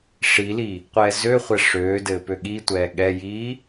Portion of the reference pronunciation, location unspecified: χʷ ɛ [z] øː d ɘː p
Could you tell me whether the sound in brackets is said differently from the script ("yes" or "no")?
yes